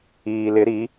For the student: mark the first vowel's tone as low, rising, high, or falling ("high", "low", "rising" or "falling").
low